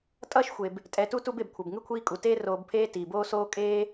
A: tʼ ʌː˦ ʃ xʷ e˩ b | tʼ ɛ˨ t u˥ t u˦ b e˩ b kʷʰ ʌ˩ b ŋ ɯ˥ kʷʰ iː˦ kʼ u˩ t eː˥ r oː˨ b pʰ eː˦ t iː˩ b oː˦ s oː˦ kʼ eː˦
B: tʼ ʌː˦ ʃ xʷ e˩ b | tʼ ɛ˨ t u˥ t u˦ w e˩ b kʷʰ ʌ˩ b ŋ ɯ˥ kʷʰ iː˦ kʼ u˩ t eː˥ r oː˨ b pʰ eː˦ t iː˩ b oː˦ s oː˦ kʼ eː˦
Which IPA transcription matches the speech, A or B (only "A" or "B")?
A